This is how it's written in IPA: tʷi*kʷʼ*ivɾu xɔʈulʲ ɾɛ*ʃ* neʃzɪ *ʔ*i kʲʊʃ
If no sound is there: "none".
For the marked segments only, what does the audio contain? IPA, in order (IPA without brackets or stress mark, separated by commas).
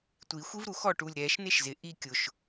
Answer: xʷ, ʃ, ʔ